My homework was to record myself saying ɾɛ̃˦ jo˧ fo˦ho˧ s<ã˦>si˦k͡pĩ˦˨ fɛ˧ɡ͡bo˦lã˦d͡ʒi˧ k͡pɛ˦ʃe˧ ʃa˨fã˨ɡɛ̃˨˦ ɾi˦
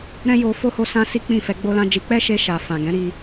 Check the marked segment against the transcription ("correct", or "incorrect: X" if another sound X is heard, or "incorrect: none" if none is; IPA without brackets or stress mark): correct